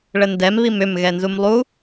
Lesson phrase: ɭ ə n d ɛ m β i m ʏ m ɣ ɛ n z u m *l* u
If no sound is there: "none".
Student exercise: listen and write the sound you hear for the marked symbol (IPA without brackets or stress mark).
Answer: lˠ